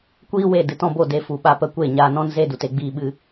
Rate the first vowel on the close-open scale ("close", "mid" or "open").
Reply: close